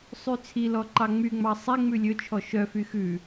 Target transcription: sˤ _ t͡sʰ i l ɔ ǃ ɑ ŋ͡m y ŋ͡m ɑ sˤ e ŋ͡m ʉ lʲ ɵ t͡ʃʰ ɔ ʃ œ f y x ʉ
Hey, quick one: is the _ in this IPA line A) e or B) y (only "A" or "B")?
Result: B